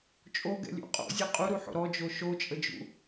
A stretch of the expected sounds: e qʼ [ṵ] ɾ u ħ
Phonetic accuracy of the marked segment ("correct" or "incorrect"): incorrect